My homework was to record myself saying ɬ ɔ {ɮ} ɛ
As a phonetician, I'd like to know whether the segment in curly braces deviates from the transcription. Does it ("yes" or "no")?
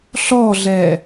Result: no